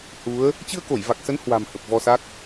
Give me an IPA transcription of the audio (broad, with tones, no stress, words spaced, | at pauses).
hu˨˦ə̯ | t͡ɕɨ˧ə̯ko˧˩jva˨˩k̚sə˨˦n hwa̤˨˩m hə˨˩p̚vɔ˧sa˦˥k̚